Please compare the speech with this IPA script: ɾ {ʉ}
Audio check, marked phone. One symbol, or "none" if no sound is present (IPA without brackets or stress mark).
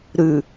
ʉ